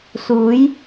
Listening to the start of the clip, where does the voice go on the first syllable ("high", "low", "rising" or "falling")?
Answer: rising